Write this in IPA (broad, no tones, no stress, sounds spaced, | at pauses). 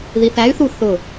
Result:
ð i θ æ y̯ θ u θ ʊ